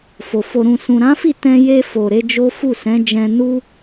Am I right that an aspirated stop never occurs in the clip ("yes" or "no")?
yes